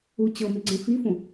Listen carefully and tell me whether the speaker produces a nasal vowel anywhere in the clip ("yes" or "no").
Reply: yes